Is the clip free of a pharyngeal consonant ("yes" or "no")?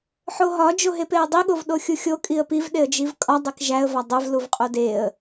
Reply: no